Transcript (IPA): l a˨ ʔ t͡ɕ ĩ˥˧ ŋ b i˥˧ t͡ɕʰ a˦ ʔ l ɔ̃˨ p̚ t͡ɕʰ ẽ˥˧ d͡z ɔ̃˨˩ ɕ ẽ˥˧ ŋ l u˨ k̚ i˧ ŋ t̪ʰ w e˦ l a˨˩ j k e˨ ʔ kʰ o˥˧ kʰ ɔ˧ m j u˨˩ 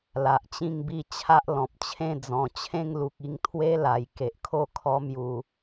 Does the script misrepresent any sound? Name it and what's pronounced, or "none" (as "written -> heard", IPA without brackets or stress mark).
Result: ɕ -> t͡ɕʰ